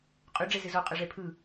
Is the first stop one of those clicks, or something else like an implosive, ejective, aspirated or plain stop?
ejective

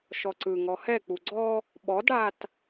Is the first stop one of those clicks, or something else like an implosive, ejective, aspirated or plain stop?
click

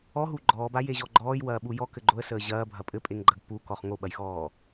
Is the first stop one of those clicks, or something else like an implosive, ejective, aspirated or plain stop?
click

